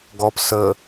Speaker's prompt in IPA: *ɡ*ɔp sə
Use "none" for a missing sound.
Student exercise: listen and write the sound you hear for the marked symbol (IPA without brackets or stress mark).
ɡ